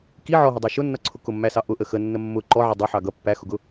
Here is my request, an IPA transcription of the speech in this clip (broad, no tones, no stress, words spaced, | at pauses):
ki ʕɔɦɪdˤæ ʃʊnːʌǀʰʊ kʊmːæsɑ ʔʊʔə xənːə mːʊ ǃɔʕɪ dˤʊħɑ ɡʌ pːæxʊɡʊ